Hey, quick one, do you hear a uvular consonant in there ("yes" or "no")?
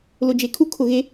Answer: no